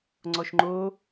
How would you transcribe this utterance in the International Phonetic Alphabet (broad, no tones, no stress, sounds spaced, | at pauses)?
ŋ͡ǀ ɔ ʃ ŋ͡ǃ o